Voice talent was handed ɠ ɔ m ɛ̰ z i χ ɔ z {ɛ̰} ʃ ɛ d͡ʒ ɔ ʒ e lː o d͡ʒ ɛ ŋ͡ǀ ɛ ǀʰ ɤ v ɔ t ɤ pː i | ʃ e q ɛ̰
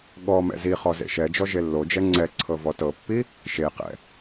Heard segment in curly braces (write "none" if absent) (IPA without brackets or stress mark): ḛ